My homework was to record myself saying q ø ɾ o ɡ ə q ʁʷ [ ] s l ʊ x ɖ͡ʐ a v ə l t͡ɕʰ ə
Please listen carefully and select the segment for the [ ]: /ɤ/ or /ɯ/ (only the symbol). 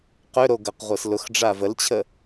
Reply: ɤ